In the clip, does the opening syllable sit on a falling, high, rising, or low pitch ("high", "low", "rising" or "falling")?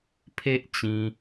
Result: high